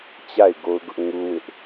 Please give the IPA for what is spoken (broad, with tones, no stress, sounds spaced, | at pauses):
t͡ɕ a˦˨ ɪ̯ ɡ o˦ ʊ̯ ɡ ʊ˦ ʔ ŋ u˦ w ɪ˦ ʔ